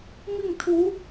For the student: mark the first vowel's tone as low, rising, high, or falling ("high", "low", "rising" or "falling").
falling